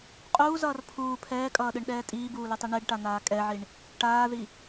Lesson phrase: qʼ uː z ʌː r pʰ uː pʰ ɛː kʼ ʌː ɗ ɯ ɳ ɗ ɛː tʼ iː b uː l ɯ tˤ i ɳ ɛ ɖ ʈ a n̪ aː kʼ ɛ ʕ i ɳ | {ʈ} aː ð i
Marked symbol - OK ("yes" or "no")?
yes